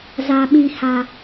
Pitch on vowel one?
low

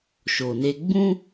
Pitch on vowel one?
low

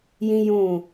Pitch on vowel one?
high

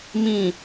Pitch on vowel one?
low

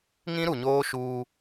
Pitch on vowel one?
high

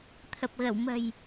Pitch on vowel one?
low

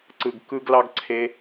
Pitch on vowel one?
low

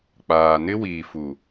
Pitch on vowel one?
low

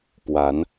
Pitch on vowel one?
rising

